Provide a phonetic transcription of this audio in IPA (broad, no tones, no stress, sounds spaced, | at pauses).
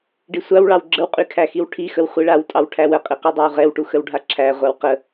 ɖ i sʷ a w ɭ ɑ w ɡ͡ǁ ə w qʼ y kʰ æ x i w ʈʰ i x ə w χʷ i ɭ a w tʼ ɑ w ʈʰ æ w ə qʼ i q y dˤ æ w ʁ ɛ w ʈ u x ə w ɖʱ a ǁʰ æ ʁʷ a w q ə